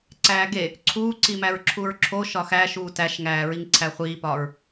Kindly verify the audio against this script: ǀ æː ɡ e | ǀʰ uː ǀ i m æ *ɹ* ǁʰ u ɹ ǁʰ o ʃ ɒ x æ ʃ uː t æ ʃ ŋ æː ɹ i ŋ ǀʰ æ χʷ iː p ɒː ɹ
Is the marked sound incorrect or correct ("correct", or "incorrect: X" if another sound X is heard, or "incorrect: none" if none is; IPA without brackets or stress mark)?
correct